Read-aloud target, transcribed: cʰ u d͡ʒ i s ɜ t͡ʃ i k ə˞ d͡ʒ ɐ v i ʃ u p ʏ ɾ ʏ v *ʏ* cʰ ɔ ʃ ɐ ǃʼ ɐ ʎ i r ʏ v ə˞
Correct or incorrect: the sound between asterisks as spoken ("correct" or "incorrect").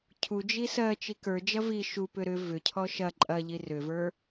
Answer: correct